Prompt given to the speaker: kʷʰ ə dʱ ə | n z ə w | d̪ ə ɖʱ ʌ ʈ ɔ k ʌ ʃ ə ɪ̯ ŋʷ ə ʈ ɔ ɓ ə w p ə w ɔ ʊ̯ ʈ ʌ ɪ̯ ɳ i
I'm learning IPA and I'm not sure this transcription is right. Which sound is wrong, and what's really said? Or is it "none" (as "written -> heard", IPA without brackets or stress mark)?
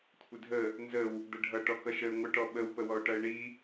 none